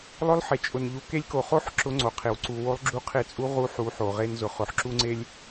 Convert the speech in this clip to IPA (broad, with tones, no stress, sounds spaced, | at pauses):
lˠ ʊ˧˥ lˠ ħ e˩ t͡ʃʼ ʊ˩ n ʎ u˩˧ k e˧˥ lʲ k o˩ χ o˥ ħ ǁ ʊ˧˥ ŋ͡ǀ o˩ qʰ e˩ w ǀ u˩ w o˧˥ lˠ ɡ͡ǁ u˧˥ qʰ e˧ t͡sʼ u˧˥ ʁ u˧˥ ħ u˩˧ ħ o˩ ʁ e˧ n z ʊ˩˧ χ ʊ˩˧ ħ ǁ u˥ ŋ͡ǀ e˥ lʲ